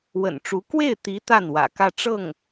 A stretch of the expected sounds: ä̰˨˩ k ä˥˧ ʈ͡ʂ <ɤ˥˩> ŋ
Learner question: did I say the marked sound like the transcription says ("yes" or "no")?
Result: yes